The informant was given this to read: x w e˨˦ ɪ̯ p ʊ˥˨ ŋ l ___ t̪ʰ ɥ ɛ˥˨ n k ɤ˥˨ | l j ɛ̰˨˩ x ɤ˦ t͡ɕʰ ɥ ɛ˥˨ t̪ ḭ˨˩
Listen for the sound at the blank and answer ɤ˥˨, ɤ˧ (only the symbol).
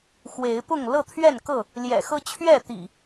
ɤ˥˨